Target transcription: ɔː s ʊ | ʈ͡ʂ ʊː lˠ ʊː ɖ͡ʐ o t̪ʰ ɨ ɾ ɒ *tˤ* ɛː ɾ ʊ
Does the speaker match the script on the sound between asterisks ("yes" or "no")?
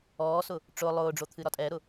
no